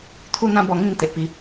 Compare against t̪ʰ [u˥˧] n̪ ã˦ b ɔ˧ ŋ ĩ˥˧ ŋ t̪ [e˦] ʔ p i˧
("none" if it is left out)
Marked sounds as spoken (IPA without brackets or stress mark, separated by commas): u˥˧, e˨